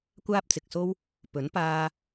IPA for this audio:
kʷ aː˥ p̚ t͡s ɪ˨ k̚ s o˥ w | p ɵ˨˥ n p aː˧

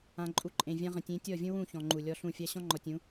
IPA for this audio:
ã˨ ǃʼ u˨˦ ǃʼ ẽ˨ vʲ ã˧ ʁ ə̃˨ tʲ ẽ˨˦ tʲ ɔ˦˨ vʲ ũ˦ w ũ˦˨ ç ɔ̃˨ ŋ͡ǃ u˨ lʲ ɔ˧ ɬ ũ˦˨ fʲ a˦ ɕ ɔ̃˦ ŋ͡ǃ ɔ˨ tʲ ũ˨˦

